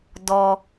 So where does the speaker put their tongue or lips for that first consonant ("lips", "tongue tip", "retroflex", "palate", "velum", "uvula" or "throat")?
tongue tip